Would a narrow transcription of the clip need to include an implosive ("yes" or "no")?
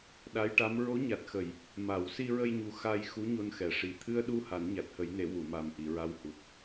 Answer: yes